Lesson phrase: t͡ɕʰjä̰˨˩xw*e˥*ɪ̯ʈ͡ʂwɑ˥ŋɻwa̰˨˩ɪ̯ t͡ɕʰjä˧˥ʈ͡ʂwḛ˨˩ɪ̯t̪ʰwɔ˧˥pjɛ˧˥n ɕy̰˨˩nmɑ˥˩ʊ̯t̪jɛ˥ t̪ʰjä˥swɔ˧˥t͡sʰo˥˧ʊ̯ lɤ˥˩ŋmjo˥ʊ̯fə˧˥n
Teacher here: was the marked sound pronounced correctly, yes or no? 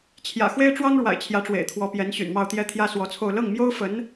yes